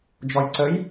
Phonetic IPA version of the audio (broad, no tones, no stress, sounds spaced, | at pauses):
d͡ʒ ɔ j ǀ ə j